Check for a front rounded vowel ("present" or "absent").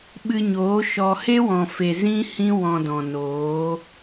absent